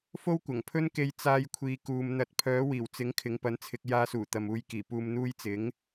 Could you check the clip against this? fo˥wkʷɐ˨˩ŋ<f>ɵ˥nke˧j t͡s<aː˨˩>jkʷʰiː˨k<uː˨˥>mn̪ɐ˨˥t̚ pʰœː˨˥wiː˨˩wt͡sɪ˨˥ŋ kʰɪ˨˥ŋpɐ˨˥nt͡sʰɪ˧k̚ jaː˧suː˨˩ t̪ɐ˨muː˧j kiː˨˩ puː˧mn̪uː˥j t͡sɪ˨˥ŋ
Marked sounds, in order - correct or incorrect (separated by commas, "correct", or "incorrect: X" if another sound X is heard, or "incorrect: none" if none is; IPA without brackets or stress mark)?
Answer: incorrect: pʰ, incorrect: aː˧, incorrect: uː˨